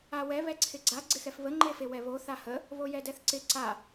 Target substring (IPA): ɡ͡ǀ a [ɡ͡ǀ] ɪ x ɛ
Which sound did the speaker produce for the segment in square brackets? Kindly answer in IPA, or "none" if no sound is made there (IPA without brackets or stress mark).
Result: ɡ͡ǀ